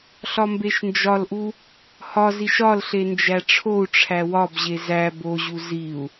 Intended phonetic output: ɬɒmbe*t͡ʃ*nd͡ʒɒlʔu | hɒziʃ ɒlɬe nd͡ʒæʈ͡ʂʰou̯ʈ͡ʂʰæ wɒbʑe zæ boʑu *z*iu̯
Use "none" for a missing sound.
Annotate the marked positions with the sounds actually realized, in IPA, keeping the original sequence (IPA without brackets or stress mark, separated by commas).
ʃ, z